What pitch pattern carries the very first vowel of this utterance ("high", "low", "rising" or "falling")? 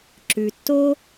low